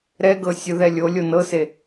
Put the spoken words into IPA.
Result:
ɾɛɡɤ sʲɯðɛlʲolʲo nɤse

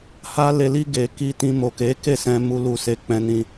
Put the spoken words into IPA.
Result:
ha˧le˨li˧ ɡe˨ ki˧tĩ˧mo˨ke˨˦ ke˦˨sɛ̃˧mu˧lu˧ se˧k͡pɛ̃˧ nĩ˧

